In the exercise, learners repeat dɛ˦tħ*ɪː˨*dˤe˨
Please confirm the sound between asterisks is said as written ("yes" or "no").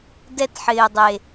yes